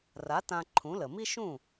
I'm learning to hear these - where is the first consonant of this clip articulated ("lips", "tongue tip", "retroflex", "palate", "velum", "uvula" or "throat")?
tongue tip